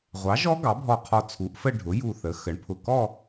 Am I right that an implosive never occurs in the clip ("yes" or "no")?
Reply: yes